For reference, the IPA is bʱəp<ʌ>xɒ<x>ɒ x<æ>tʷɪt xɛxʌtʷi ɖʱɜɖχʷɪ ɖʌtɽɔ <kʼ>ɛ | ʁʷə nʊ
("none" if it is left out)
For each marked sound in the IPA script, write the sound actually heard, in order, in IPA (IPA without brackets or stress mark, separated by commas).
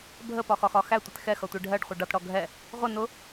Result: ɒ, x, æ, ɡʱ